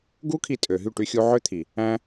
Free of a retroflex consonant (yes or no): no